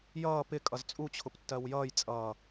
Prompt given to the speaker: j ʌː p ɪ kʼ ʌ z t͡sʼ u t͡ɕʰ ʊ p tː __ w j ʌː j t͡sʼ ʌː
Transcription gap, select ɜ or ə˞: ɜ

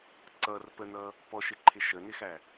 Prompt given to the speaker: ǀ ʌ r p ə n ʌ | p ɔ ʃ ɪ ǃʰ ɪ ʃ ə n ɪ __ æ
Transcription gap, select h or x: x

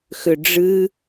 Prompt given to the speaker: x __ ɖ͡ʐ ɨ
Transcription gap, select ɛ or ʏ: ʏ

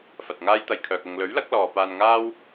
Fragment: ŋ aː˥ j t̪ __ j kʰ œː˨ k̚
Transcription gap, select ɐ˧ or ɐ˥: ɐ˧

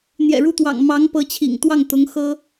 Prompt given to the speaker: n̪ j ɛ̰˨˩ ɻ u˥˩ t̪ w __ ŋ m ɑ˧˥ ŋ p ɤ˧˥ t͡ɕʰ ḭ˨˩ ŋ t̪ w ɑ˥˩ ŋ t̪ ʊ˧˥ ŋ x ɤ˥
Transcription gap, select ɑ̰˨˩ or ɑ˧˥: ɑ̰˨˩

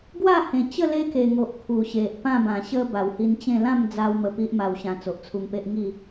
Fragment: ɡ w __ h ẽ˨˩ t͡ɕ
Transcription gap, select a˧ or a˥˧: a˥˧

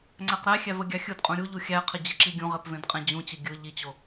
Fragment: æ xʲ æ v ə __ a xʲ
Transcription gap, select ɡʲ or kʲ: ɡʲ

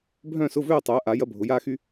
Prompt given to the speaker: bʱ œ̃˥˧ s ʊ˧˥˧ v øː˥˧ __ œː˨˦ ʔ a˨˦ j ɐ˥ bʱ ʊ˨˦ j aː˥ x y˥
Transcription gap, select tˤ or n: tˤ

